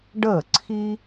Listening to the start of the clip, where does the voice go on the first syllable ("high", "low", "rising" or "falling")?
falling